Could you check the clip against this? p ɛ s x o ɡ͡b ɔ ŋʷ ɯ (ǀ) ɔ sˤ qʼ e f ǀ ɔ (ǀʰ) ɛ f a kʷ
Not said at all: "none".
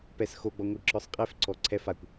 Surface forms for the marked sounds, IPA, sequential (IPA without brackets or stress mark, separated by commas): ǁ, ǀʰ